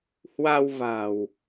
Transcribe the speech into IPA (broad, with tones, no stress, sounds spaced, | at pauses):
h w a˧ w v a̤˨˩ w